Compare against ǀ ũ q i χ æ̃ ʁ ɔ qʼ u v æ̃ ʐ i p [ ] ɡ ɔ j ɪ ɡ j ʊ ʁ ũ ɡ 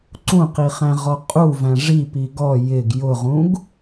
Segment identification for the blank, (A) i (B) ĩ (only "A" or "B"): A